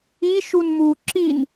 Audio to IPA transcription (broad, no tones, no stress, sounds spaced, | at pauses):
i ʃ u n m u ǁ i n